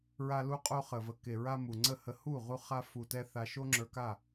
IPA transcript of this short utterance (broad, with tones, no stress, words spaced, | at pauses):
ɹa˧lu˧qʼo˧χə˨ və˨ke˨ɹa˧ mu˨ŋ͡ǀə˦˨hə˧ hu˦˨ʁu˧ χa˦ fu˧tɛ˦ θa˧ʃo˦ŋ͡ǁə˞˧ka˦˨